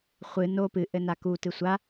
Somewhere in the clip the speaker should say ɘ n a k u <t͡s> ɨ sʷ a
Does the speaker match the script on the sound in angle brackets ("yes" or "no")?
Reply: no